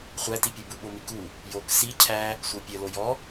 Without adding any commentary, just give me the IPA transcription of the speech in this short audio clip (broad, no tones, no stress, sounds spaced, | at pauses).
χʷ æ t i pʲ u b u ɓ o m i k u | j o k s i cʰ æ | sʷ ɤ pʲ ə l o j ɔ